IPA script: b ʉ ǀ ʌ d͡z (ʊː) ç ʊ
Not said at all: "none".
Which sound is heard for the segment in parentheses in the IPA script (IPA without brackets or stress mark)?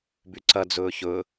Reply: ʊː